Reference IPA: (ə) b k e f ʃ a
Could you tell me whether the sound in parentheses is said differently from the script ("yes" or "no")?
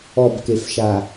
yes